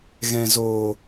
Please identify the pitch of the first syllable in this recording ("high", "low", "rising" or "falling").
low